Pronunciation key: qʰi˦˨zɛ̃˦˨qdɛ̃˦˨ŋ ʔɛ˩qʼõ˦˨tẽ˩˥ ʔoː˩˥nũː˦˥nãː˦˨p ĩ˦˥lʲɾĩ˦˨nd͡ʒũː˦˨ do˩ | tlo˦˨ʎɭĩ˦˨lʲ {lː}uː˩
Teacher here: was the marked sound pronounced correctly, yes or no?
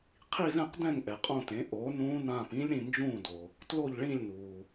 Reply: no